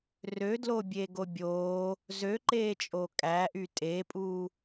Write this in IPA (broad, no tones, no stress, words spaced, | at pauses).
rødlobʲeɡo bʲoː | zøǃeːt͡ʃʼo kʼæʔy tʼepʼuː